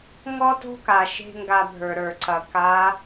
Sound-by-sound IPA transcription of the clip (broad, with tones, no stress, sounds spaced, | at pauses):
ŋ ɔ˥ t o̤˥ k a˩ ʃ e̤˥ ŋ ɡ a˧ bʱ ə˞˩ ɾ ə˞˩ ǀ ɐ˩ k a˧˥